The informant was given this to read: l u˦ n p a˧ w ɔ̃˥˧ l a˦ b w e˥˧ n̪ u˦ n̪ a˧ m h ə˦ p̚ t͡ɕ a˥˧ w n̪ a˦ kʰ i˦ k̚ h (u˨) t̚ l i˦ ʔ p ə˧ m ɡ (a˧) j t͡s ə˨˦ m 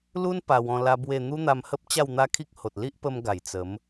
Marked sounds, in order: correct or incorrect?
incorrect: o˨, incorrect: a˨˩

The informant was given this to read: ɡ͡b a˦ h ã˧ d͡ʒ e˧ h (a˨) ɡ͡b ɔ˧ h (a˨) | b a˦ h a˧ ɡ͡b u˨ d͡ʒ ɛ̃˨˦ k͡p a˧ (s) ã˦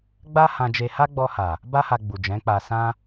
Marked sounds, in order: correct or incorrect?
incorrect: a˦, correct, correct

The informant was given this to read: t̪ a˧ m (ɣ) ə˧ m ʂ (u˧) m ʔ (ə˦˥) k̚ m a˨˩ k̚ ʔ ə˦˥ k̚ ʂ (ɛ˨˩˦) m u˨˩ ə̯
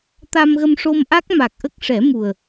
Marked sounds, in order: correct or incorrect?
correct, incorrect: o˧, incorrect: a˦˥, correct

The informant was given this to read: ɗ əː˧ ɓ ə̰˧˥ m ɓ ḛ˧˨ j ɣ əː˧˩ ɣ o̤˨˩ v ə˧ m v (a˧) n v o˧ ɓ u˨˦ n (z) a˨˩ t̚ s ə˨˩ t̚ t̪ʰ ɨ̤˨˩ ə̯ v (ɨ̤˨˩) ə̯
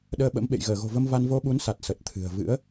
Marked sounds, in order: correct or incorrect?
correct, incorrect: s, incorrect: ɨ̰˧˥

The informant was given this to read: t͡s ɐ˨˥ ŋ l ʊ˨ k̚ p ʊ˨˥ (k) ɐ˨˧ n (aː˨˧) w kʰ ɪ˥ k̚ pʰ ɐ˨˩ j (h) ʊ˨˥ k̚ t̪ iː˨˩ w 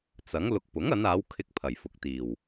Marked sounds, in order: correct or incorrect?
incorrect: ŋ, correct, incorrect: f

